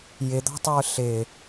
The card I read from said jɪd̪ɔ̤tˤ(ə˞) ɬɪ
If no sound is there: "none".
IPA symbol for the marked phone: ə˞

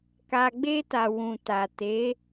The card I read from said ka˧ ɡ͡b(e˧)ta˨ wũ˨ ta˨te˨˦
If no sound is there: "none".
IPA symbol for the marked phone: e˧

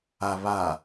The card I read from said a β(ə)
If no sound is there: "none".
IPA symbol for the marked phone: a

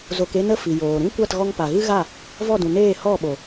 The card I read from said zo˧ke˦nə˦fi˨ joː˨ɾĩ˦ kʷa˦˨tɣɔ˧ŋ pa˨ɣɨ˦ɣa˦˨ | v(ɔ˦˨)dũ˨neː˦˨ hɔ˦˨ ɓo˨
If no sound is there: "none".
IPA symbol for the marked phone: ɔ˦˨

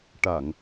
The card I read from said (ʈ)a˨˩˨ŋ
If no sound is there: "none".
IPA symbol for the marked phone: ʈ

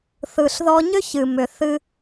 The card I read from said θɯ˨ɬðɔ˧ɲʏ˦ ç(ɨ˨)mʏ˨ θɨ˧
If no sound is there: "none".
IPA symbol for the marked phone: ɨ˨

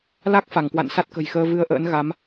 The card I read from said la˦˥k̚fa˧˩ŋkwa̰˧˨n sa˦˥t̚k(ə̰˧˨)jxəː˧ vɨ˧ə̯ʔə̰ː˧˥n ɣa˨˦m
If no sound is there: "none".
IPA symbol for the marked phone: ə̤˨˩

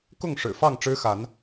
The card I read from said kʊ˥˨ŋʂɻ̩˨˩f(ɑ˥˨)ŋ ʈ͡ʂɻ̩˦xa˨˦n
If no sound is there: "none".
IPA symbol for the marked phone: ɑ˥˨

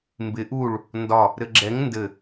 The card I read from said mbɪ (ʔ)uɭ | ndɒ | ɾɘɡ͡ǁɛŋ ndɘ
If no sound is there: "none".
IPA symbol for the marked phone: ʔ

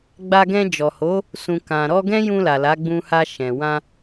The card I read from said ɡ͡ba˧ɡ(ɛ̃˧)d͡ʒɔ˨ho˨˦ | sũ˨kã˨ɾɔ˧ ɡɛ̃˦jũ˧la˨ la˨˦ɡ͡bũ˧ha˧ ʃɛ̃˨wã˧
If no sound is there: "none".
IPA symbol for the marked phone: ɛ̃˧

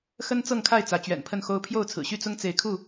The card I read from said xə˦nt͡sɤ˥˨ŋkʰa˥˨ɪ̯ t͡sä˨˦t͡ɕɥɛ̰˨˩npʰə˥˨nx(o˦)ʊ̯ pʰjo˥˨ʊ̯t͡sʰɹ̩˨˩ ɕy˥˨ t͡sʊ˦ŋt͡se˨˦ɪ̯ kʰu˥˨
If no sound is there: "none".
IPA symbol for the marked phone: o˦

